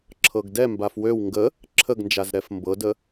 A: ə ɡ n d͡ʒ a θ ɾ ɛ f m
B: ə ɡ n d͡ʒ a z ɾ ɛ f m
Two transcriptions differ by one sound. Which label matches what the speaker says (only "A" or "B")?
B